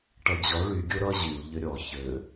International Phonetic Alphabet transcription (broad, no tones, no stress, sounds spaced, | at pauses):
ʈ ʌ d͡ʑ ɔ ɭ y ɡʲ o ɾ ʌ ʑ y u̯ ʎ ɘ ɾʲ ɔ ç ɘ